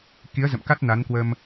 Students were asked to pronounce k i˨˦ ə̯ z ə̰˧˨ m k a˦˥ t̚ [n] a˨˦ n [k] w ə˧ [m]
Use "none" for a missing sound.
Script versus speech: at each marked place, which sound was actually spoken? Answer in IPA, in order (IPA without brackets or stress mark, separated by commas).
n, k, m